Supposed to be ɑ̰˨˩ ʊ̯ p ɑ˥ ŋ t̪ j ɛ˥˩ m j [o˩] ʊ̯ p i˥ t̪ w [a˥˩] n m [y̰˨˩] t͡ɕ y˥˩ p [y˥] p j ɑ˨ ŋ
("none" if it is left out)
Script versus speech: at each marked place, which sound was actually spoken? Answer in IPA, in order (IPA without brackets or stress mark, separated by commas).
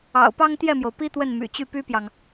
o˩, ə˥˩, y̰˨˩, y˥